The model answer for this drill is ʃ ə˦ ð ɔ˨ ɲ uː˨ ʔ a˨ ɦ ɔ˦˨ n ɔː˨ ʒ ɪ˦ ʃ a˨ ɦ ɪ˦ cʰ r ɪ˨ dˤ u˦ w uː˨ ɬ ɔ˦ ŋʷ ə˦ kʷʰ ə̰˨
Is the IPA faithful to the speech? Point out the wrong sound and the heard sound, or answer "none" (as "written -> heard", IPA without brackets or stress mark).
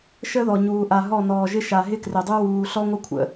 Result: cʰ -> k